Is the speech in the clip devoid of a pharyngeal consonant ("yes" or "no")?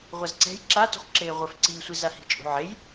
no